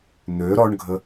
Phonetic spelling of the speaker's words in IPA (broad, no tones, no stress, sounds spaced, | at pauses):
n̪ ø ɾ ɔ ɳ ɡʱ ə